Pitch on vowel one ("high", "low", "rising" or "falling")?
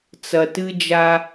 low